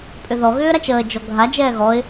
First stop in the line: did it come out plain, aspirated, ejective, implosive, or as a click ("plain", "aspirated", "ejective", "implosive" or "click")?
ejective